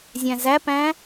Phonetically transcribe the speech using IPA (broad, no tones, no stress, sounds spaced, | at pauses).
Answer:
zʲ æ̃ z æ p æ̃